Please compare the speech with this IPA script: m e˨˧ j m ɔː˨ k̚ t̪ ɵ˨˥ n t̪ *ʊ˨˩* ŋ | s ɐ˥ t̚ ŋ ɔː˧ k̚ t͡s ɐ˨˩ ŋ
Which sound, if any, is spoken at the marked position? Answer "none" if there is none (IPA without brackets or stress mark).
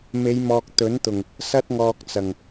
ʊ˨˩